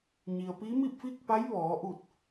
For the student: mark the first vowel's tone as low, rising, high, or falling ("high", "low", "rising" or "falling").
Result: low